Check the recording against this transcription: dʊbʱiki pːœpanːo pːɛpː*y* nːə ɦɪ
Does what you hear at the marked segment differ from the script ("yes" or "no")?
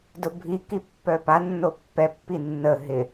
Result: yes